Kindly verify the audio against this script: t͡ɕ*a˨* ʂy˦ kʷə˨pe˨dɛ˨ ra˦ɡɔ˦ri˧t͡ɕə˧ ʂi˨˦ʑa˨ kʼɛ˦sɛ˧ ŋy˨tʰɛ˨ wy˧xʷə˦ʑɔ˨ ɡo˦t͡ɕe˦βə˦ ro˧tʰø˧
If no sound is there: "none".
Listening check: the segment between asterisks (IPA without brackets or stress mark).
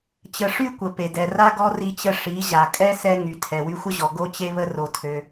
ə˨